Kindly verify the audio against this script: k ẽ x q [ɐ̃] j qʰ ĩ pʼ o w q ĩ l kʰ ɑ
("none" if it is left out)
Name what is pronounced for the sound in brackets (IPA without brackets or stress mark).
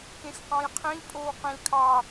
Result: ɑ̃